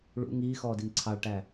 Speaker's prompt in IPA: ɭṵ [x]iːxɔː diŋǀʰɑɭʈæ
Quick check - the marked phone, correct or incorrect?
incorrect